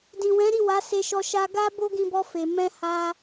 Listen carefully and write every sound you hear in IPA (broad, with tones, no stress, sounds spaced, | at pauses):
d ĩ˨ w ɛ̃˨˦ ɾ i˦˨ w a˨˦ s e˧ ʃ ɔ˧ ʃ a˧ ɡ a˦ b o˦ ɡ ĩ˧ b ɔ˧ f e˨ m ɛ̃˧ h a˧